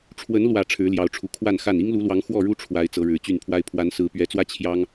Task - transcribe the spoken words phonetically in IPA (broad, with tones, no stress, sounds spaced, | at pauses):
ʈ͡ʂʰ w ə˨˦ n l w ä˨˩ ʈ͡ʂʰ ɻ̩˨˦ l j ɑ˨˦ ʊ̯ ʈ͡ʂʰ u˨˩ kʰ w a˥˨ n x a˥˨ n i˦ ŋ l u˨˦ l w ɑ˨˦ ŋ x w ɔ˥˨ ɻ u˦ ʈ͡ʂʰ w a˨˦ ɪ̯ t͡s ɤ˨˦ ɻ ɻ̩˨˩ t͡ɕ y˥˨ n pʰ w a˦ ɪ̯ pʰ w a˨˦ n s ɹ̩˨˦ p ɥ ɛ˨˦ t͡s w ä˦ t͡ɕʰ j ɑ˦ ŋ